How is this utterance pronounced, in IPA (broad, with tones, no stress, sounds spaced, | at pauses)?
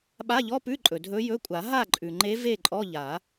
ɓ a˧˥˧ ʎ ɔ˧˥˧ p ʉ˧˥˧ ǃʼ ɵ˩ dʱ ɵ˧˥ j ɵ˧˥˧ kʷʼ a˨˩˦ ɦ a˥˨ ǃʼ ʉ˩ ŋ͡ǃ e˧˥ v e˥˨ ǃʼ ɔ˧˥˧ ʎ a˨˩˦